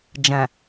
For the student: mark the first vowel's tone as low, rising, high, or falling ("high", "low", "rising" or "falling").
low